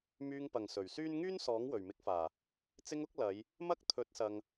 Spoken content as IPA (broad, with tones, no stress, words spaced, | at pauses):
myː˧ŋpɐ˨˩ŋ sɵ˨˩ɥsyː˥n ŋyː˥n sɔː˨˥ŋwɵ˨˩ɥmɪ˨˥k̚faː˨˩ | t͡sɪ˧ŋʊ˨˥k̚ lɐ˨˧j | mɐ˥k̚ t̪ʰɵ˨˥t̚sɐ˨ŋ